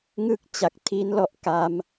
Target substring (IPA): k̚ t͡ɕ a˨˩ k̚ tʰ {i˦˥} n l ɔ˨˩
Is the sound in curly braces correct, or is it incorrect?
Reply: correct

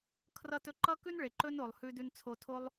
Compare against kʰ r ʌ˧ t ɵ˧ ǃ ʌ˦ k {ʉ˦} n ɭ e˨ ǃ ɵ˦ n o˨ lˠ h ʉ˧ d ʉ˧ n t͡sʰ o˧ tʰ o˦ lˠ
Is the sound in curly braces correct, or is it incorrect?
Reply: correct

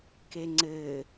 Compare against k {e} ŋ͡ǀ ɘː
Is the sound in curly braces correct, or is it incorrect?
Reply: correct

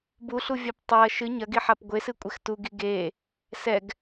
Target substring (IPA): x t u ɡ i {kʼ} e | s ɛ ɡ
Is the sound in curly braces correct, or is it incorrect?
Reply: incorrect: ɡ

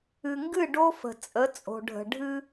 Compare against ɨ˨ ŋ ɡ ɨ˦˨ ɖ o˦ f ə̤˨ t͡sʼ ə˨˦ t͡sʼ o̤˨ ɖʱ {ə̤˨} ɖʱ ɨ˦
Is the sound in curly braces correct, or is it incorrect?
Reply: correct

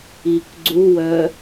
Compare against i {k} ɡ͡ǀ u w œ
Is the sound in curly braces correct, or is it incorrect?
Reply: correct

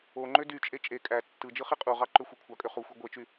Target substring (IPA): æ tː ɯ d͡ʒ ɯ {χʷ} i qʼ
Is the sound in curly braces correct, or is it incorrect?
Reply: incorrect: χ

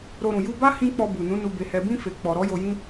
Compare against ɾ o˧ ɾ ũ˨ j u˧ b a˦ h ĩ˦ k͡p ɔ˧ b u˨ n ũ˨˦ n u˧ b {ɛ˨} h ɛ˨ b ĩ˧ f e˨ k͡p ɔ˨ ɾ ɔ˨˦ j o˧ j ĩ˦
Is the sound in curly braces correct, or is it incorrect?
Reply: incorrect: e˨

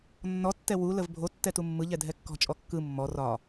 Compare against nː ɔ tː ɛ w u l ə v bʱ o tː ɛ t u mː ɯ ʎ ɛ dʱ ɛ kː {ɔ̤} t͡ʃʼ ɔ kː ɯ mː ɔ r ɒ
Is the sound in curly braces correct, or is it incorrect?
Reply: correct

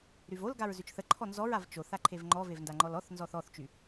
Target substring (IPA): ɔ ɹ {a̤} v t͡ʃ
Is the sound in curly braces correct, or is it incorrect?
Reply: incorrect: a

